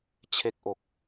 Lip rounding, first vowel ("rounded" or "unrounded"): unrounded